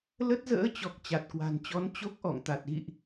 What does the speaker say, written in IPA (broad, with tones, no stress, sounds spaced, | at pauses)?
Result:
l ə˦˥ t̚ z ə̰ː˧˥ t͡ɕ ɔ˨˩ k̚ t͡ɕ a˨˩ t̚ k w a̤˨˩ n t͡ɕ ɔ˨˦ n t͡ɕ o˦˥ k̚ ʔ ɔ̰˧˨ ŋ t̪ a˨˩ t̚ ɣ ḭ˧˨ ʔ